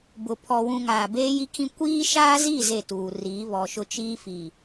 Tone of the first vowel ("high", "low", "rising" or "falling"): low